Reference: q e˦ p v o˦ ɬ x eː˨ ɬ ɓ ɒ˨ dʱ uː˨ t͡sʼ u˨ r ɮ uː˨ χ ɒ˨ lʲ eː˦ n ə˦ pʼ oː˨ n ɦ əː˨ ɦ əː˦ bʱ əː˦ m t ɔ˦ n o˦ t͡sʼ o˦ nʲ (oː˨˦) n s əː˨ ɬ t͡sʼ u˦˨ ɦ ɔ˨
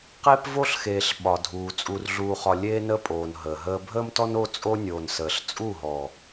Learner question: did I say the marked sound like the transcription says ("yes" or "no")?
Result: no